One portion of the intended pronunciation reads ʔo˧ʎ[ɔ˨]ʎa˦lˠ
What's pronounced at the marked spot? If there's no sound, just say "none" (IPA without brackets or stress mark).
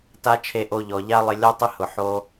ɔ˨